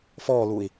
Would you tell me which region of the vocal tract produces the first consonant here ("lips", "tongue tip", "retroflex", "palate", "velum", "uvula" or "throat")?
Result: lips